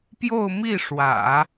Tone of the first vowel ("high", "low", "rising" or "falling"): falling